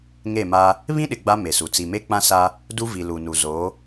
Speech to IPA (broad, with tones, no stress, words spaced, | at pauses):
ŋe˦˨ma˦ | βĩ˦ɗɪ˨ ɡ͡ba˦ me˨su˨ t͡si˨me˦k͡pã˦sa˦ | du˦vi˨lu˨nu˨ zo˨˦